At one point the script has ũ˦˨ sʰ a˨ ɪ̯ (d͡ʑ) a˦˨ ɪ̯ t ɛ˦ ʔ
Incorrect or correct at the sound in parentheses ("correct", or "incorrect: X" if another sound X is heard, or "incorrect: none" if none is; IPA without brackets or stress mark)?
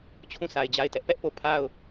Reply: correct